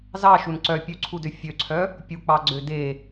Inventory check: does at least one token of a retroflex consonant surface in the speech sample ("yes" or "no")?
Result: no